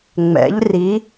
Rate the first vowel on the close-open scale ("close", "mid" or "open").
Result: mid